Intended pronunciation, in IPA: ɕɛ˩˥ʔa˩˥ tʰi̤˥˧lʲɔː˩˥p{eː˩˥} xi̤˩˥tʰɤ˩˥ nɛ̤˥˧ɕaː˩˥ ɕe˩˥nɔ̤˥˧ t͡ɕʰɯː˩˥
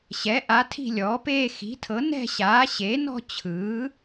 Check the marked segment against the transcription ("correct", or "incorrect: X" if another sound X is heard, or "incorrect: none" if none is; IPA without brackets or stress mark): incorrect: eː˥˧